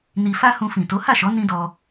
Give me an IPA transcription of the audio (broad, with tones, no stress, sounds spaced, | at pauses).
n i˧ f a˦ h ũ˧ f ĩ˨ t o˨˦ h a˦˨ ʃ ɔ˨˦ n ĩ˦ d ɔ˧